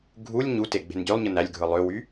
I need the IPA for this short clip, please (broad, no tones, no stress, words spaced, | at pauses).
ɡʱulʲ ɲute ɡ͡be̤nɟølˠɲɯ nælʲɡʱɯ lˠøwy